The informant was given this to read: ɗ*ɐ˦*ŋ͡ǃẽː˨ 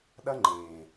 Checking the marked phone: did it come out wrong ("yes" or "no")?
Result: no